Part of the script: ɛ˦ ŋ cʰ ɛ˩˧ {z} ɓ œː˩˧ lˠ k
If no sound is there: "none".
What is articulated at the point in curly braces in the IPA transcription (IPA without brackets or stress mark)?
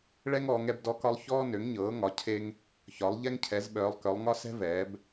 z